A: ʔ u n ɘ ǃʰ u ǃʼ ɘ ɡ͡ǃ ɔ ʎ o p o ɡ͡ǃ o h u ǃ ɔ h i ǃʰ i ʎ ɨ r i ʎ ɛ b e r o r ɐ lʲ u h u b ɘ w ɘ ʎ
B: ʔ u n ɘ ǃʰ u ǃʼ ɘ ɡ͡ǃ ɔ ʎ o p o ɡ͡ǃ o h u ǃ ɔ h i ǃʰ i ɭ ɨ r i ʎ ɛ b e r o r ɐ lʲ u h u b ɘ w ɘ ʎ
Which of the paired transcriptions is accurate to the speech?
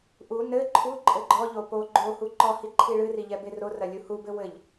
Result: B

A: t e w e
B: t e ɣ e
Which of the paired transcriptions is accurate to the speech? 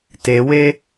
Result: A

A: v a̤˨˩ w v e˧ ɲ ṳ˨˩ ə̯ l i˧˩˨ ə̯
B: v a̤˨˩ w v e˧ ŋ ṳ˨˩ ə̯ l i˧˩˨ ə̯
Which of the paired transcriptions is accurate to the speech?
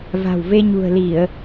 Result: A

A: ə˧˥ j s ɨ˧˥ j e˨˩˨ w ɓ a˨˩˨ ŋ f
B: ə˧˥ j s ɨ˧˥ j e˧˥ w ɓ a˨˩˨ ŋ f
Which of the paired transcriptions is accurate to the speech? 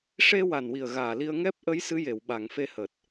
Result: A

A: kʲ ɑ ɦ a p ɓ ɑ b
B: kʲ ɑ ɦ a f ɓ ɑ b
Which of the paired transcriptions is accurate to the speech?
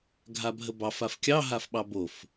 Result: B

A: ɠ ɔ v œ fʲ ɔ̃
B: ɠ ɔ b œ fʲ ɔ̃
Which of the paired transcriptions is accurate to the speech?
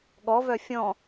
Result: A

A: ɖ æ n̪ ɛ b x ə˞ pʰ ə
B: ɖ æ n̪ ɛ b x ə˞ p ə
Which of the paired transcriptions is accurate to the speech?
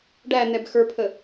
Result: A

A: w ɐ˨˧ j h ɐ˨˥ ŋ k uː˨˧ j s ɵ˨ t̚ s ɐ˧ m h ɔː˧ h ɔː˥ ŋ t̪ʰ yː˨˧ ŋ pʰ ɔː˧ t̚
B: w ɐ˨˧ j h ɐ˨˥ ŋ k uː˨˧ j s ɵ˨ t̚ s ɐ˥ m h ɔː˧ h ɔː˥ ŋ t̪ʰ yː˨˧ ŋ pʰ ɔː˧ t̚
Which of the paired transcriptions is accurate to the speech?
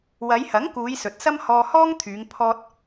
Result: B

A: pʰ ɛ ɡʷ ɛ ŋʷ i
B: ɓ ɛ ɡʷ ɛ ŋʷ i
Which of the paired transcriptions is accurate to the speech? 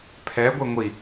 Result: A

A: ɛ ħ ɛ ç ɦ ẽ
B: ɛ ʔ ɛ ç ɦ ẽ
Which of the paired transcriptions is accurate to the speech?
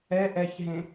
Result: B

